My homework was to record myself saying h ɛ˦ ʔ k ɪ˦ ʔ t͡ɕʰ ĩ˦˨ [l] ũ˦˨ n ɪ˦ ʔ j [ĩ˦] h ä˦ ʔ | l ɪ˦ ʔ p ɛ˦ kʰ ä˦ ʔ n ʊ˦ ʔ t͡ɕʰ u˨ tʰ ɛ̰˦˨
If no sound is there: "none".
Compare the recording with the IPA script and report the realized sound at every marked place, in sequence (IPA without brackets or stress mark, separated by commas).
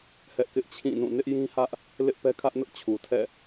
n, ĩ˦